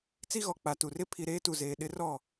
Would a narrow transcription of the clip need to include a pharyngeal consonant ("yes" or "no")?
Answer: no